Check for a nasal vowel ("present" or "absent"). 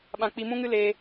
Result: present